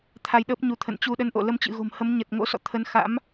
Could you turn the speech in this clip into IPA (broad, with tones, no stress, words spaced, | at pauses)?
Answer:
t̪ʰa˧jɗəː˦˥p̚ɲu˧t̪ʰə̰˧˨n t͡ɕu˧ɗə˧nʔo̰˧˨ lə˧mt͡ɕɨ̰˧˨ɣo̤˨˩mhə˨˦m ɲə˨˩t̚ŋo̰˧˥ sɔ̰˧˨t̪ʰə˧n xa̰˧˥m